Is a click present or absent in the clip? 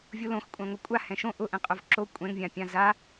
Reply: present